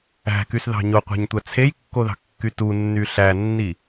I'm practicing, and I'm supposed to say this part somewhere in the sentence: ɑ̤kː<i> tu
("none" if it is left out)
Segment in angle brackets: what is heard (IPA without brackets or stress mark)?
y